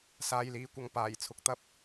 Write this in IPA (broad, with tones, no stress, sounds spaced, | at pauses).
s aː˨ j l iː˨˧ kʷ ɐ˨ ŋ p aː˨˩ j t͡sʰ ʊ˨˥ k̚ t̪ ɐ˥ p̚